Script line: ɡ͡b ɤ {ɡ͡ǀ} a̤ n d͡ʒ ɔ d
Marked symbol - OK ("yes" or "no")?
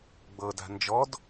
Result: no